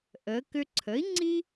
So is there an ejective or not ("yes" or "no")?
no